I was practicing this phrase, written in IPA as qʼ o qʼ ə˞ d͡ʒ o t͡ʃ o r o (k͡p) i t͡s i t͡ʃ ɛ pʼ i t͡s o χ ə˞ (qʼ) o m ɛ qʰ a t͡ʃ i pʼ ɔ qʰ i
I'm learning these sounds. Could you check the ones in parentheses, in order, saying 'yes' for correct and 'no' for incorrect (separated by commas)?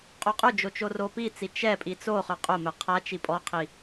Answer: no, yes